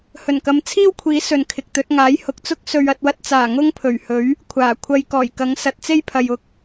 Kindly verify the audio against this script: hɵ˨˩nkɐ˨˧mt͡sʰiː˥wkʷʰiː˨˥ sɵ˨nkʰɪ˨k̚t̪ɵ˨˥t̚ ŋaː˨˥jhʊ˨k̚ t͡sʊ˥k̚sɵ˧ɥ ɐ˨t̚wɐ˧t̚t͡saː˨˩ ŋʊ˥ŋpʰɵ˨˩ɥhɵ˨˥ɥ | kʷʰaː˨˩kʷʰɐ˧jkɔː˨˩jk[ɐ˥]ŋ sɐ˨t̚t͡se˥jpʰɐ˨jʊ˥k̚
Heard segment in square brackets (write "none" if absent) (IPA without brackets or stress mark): ɐ˨˥